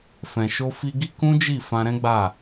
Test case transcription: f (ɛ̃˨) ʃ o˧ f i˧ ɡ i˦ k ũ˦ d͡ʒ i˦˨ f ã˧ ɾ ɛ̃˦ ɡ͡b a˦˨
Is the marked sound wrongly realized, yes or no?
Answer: no